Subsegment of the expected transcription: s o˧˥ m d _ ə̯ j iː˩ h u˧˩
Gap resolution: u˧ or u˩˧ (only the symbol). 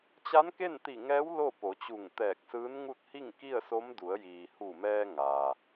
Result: u˩˧